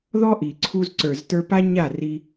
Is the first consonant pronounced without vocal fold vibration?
no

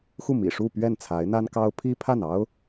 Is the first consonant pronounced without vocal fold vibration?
yes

